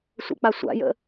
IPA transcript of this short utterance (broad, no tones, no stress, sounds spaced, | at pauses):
sʷ ə̰ k͡p a sʷ a̰ j ə̰